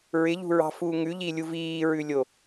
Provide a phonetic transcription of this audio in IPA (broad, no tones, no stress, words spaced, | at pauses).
ɹɪʎṳɹɑ̤fuː ŋʉʎilʲu viːɹʉlʲo